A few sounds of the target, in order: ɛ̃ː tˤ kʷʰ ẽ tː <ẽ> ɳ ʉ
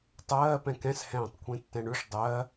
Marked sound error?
yes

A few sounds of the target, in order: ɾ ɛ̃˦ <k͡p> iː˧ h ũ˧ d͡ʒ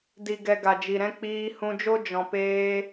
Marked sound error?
no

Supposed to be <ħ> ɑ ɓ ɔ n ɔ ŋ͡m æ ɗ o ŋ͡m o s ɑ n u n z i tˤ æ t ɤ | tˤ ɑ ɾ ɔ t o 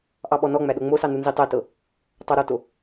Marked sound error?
yes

